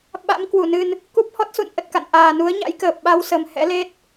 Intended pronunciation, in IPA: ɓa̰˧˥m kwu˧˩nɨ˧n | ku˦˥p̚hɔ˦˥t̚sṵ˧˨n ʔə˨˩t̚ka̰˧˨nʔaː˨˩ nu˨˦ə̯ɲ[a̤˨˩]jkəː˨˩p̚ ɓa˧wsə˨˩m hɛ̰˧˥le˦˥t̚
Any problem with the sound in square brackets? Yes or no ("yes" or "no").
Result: yes